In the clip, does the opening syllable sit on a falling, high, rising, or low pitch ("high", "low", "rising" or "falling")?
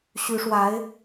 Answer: rising